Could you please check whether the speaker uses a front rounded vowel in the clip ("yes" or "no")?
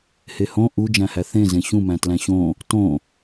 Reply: no